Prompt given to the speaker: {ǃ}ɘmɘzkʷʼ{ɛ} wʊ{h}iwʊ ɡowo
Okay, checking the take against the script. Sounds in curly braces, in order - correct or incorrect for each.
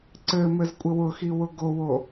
incorrect: ǀ, incorrect: ɘ, incorrect: x

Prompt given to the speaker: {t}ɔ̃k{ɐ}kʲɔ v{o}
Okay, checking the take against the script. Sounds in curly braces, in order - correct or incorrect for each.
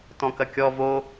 correct, correct, correct

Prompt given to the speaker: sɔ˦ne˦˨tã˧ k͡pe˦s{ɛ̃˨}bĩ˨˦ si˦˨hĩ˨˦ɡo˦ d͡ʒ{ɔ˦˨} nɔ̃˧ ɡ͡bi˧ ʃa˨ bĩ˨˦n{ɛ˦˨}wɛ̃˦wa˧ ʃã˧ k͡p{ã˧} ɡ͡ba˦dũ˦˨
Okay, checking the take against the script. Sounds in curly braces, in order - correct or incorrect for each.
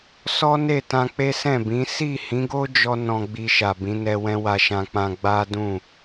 incorrect: ɛ̃˦˨, incorrect: ɔ˦, incorrect: ɛ˧, incorrect: ã˦

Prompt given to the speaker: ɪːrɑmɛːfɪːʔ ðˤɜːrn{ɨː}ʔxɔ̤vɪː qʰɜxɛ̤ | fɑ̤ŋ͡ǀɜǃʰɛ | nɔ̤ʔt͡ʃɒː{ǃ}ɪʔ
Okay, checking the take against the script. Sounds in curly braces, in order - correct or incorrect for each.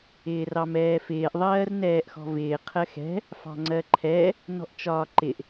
incorrect: ɛː, correct

